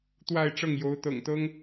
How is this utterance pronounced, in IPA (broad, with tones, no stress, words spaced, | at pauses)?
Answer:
t̪wa˥˧ɪ̯ʈ͡ʂɤ˥˩ŋ jo˧˥ʊ̯ t̪ɤ̰˨˩ŋt̪ɤ˥ŋ